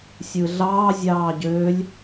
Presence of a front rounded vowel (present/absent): present